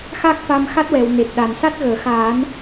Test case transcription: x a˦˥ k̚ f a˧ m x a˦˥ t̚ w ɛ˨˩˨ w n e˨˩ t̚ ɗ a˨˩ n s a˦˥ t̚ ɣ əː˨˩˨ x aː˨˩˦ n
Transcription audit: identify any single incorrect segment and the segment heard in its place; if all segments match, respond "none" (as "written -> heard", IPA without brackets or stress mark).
none